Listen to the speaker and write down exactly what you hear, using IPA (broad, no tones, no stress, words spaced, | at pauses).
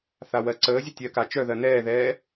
θawɜǀəːzʲə tʲɜka t͡ʃœðɜ nɛːðɛː